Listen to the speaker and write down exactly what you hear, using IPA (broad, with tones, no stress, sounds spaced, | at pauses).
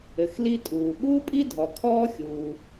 ɘ˩ x l i˥ tʼ uː˩ ɠ uː˥ pʼ i˥ dʱ ɔ˩ kʰ ɔː˥ xʲ uː˩